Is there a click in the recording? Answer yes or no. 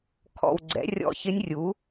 yes